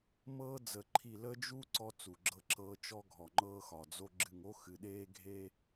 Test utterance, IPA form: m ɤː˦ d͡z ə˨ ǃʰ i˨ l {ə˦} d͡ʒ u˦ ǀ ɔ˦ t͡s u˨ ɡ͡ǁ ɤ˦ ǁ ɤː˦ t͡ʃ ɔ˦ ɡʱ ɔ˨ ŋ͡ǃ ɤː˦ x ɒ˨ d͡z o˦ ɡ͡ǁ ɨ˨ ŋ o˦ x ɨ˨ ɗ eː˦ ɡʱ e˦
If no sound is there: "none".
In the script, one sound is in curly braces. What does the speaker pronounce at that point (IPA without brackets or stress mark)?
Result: ə˦